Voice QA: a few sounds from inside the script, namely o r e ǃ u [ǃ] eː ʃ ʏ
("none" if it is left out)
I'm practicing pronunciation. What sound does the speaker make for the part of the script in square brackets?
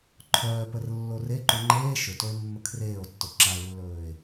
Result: ŋ͡ǃ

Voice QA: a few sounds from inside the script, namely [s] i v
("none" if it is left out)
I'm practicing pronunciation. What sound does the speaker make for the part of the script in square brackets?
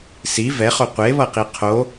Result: s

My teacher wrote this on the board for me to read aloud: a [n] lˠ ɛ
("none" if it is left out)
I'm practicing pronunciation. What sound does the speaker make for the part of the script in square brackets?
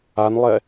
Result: n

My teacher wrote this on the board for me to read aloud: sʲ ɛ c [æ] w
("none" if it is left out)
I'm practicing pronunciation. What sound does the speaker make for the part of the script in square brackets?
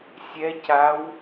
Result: a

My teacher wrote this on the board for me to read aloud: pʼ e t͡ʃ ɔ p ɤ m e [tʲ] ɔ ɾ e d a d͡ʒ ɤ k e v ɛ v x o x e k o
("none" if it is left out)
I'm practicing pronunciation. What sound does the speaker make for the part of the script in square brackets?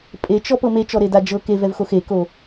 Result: t͡ʃ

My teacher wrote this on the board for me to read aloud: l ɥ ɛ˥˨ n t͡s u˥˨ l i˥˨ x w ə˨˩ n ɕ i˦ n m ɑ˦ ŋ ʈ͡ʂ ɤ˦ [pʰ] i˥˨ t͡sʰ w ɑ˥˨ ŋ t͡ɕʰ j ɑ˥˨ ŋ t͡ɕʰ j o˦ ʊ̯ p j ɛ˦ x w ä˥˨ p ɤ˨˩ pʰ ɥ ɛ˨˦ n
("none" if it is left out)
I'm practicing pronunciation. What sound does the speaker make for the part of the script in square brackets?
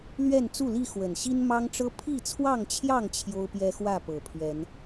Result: pʰ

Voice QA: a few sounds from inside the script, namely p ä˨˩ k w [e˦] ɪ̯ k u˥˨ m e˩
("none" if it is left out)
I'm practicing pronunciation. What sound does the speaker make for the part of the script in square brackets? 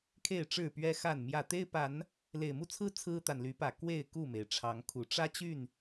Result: e˥˨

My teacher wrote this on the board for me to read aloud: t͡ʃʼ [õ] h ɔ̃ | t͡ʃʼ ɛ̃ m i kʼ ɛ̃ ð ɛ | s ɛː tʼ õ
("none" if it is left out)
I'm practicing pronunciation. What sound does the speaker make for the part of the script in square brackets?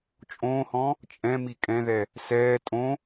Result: õː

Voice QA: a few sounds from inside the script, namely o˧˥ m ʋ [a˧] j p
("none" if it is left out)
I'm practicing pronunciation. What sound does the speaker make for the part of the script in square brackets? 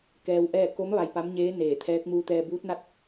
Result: a˧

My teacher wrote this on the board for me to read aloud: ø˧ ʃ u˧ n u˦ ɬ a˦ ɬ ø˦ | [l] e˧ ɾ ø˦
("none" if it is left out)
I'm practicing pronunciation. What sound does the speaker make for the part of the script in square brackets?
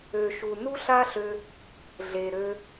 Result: ɮ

